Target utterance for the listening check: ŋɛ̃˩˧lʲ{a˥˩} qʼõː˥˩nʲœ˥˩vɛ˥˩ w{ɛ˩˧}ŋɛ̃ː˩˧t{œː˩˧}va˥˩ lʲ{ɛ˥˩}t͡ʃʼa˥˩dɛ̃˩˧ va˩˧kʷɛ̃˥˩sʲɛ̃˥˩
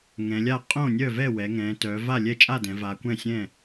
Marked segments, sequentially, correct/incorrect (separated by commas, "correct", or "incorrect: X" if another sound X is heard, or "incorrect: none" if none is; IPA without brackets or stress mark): correct, correct, correct, correct